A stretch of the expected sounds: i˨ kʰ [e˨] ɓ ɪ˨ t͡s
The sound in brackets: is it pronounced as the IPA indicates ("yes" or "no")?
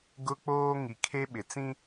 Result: no